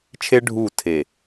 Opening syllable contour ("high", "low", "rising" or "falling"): high